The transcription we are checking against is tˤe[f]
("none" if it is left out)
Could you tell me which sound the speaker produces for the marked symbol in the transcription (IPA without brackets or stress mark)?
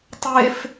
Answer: f